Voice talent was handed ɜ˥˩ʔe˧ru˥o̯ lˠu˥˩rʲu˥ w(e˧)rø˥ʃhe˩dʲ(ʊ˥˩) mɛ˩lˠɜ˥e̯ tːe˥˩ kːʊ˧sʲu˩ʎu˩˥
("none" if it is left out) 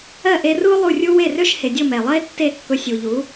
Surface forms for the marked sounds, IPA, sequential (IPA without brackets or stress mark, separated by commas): e˥˩, ʊ˥˩